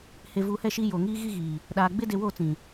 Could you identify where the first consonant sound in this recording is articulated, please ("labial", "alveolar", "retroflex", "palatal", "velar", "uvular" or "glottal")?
glottal